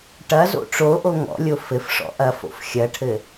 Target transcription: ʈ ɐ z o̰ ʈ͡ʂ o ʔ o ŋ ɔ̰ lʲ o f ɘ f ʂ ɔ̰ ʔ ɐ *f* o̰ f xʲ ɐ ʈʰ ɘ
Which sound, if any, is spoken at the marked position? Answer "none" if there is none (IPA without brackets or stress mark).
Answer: f